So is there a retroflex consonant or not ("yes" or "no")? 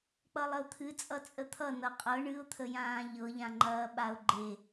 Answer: yes